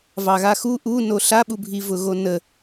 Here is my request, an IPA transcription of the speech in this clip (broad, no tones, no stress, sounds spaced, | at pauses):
v ɑ ɣ a x u ʔ u n o ɬ a ɓ u bʱ i v ʊ ɣ o n ə